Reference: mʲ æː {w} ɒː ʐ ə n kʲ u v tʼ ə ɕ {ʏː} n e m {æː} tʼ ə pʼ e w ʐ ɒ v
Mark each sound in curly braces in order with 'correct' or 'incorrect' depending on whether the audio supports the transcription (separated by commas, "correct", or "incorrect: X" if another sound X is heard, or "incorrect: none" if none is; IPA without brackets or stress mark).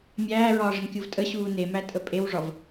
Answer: incorrect: ɹ, incorrect: uː, incorrect: æ